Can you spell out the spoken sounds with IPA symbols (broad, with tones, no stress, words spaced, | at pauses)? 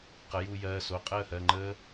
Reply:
qə˩˥juː˧ jɜː˩˧˩so˩˧˩ qʼəː˥˨hɜ˩˧˩ŋ͡ǃəː˦˥